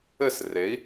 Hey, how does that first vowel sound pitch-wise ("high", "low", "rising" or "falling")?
falling